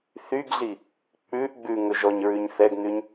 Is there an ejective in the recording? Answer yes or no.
no